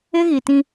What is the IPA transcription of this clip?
ɪ˦ ɣ i˨ t ĩ˦

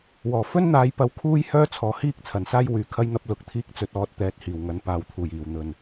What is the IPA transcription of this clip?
w ɔː˨˩ f ɵ˥ n n̪ aː˨˧ j p ɐ˨˥ w kʰ uː˧ j h œː˧ t͡sʰ ɔː˨˩ h iː˧ k̚ t͡sʰ ɐ˨˩ n s aː˥ j w yː˨ kʰ ɐ˥ j n̪ ɐ˥ p̚ l ʊ˨˥ k̚ t̪ʰ iː˥ k̚ t͡s ɵ˧ t̚ ɔː˧ t̚ t̪ ɛː˨˥ t̚ h iː˨˩ w ŋ ɐ˨˧ n p aː˨ w t̪ʰ uː˨˩ j iː˨˩ w n̪ ɵ˨˩ n

